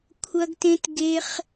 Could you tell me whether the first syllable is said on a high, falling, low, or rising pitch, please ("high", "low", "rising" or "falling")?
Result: high